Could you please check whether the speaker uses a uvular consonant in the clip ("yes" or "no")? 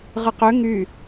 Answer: yes